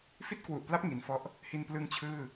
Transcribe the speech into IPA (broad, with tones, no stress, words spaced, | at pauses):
fi˥˩t̚kwu˨˩ʔpla˦˥p̚ ŋi˩˦nfɔ˦˥ʔ | hi˧nplɯ˦˥ŋt͡ɕʰɯː˥˩